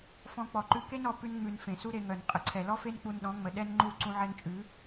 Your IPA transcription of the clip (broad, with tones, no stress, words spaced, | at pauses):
fɔ̃˧k͡pɔ˨ǃʉ˧ ke˦nɔ˨ pʉ˧nŋ͡mʉ˨n fẽ˨su˦ɾe˧ŋœ˨n qʼə˨ǀʰɛ˨ lɔ˦fe˦n k͡pu˧nɗɔ̃˨˦ ŋ͡mə˨ɗɛ˦nŋ͡ǃu˦˨ ǀũ˧ʕɛ˧nt͡ʃʼʉ˨˦